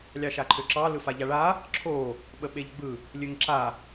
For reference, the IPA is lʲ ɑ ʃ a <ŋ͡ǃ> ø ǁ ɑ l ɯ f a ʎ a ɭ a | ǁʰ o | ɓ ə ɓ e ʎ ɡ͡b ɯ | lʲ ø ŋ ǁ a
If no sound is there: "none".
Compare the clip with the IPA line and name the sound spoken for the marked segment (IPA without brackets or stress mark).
ǃʰ